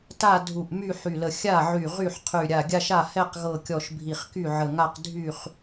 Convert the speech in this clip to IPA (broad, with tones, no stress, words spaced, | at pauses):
ta˥˧ dʱu˧˩ʔ my˥˧ħy˧˩lə˧˩ xʲa˥˩ʕy˧˩ ʁy˥˩ħqʰy˧˩ ɾʲa˧˩ɡʲa˥˧ʃa˥˩ hɛ˥˧qɣɤ˧˩kʲɔ˧˩ʃ bʱi˧˩χky˥˩ʕə˧˩ŋa˥˧q dʱy˥˩χ